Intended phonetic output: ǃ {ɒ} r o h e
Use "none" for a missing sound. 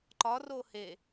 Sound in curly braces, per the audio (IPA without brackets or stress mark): ɒ